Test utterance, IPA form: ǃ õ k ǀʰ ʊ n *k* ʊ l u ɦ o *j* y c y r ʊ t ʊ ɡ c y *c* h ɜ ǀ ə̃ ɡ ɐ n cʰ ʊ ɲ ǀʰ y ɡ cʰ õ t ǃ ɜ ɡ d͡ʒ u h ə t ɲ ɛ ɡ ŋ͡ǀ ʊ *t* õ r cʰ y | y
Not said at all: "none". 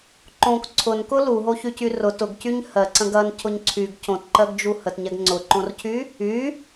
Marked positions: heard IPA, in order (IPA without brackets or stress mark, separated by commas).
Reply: k, ç, ɲ, ǃ